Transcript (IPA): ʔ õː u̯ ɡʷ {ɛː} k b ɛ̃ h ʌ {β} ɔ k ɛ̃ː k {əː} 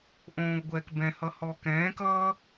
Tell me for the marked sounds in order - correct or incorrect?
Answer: correct, incorrect: h, incorrect: ʌː

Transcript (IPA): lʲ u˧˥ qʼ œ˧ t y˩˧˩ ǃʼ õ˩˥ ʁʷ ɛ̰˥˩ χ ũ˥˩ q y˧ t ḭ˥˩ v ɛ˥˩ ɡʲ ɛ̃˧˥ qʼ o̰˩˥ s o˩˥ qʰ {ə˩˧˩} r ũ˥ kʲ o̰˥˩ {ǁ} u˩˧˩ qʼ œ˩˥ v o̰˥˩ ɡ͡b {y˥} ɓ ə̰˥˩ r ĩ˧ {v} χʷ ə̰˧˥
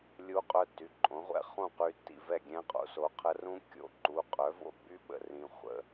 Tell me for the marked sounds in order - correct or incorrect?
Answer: incorrect: ə˧˥, incorrect: ǃ, correct, incorrect: none

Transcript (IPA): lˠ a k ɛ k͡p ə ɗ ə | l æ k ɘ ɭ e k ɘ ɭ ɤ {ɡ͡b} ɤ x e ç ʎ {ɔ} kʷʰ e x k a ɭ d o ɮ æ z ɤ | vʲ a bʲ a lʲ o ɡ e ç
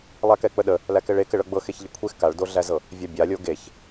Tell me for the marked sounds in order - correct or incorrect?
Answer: correct, incorrect: ə

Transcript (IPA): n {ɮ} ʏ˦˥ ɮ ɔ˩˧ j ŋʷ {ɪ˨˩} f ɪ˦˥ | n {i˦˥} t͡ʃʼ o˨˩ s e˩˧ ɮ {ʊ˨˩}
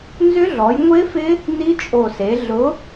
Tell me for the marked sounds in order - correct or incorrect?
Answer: incorrect: z, incorrect: ɪ˦˥, correct, incorrect: ʊ˨˥

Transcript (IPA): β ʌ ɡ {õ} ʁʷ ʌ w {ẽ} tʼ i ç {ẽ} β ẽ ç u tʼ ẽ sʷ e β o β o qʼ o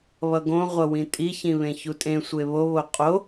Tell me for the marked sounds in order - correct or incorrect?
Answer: correct, incorrect: ĩ, incorrect: ĩ

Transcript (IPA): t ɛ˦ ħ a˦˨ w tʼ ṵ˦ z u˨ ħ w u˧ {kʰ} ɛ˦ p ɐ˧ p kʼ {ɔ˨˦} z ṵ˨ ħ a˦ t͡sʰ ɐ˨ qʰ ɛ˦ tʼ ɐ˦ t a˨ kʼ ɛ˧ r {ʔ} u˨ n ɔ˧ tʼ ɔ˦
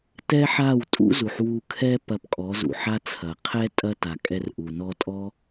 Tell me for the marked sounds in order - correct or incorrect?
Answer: correct, correct, correct

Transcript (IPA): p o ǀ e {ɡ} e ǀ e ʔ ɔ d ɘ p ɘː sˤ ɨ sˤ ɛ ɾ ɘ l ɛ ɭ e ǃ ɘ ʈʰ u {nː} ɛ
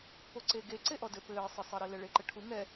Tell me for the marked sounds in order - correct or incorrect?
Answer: correct, incorrect: ŋ

